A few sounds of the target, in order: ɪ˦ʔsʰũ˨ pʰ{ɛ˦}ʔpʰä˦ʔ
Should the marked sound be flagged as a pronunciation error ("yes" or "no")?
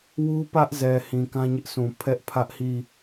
no